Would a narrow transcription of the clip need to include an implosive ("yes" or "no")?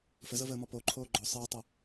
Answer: no